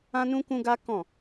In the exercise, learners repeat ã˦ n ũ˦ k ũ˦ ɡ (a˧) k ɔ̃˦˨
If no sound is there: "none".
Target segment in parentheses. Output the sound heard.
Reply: a˦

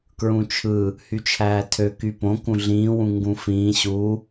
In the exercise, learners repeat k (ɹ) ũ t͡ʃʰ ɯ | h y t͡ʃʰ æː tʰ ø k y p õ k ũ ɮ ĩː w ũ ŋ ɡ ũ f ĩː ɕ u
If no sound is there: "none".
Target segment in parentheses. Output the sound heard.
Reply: ɹ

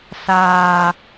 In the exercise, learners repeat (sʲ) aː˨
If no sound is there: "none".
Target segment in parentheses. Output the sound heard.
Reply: s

